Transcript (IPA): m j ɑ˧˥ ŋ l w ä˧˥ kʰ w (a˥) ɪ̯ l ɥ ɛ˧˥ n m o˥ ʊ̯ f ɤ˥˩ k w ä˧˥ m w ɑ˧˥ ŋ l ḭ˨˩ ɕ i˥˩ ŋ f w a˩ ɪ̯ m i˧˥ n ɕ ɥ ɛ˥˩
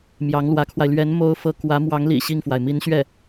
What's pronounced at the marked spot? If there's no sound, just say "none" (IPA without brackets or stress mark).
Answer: a˧